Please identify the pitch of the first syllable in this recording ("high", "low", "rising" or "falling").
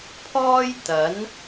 high